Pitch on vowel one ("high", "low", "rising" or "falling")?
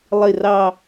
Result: low